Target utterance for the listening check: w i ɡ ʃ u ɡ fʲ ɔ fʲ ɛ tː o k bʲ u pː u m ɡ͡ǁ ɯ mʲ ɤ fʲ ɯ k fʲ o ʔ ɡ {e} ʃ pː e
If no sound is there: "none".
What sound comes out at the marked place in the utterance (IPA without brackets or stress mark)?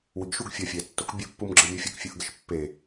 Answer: ɛ